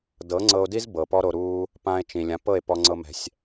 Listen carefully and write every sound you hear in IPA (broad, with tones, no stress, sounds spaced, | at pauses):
d ɤ˨˦ ŋ͡ǀ ɤ˧ o̯ d i˦ z b ɤ˨ p ɔ˦ ɾ o˧ ɾ uː˦ | p ã˧ e̯ t͡ʃ ĩ˨ lʲ ã˨˦ p ɤ˦˨ e̯ p ɔ˧ ŋ͡ǀ ɤ˧ m ɛ̤˧ sʲ